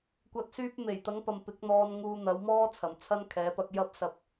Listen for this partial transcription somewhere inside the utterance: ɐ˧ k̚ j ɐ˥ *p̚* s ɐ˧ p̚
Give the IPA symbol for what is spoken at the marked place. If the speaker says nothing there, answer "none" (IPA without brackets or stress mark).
p̚